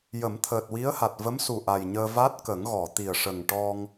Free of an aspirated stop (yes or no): no